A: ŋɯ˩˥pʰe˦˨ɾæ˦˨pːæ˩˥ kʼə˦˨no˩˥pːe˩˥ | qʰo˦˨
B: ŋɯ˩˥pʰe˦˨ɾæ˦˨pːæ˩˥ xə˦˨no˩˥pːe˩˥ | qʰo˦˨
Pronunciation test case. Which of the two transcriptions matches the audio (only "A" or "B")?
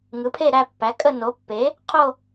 A